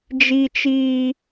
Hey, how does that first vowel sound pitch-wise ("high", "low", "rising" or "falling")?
high